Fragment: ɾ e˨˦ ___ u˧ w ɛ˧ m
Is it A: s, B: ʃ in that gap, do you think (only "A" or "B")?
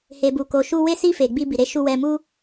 B